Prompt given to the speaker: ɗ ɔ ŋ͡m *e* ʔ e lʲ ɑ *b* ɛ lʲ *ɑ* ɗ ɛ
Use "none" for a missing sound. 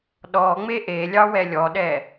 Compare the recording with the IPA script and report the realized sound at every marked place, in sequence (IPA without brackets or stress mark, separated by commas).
e, w, ɔ